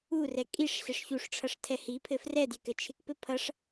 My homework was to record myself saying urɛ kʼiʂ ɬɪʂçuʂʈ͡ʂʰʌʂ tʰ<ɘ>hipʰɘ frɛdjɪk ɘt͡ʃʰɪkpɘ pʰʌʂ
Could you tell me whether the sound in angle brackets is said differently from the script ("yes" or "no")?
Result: yes